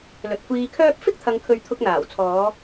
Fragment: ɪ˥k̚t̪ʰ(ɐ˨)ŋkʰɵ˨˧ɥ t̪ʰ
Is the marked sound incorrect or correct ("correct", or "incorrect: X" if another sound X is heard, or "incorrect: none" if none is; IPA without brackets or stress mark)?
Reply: correct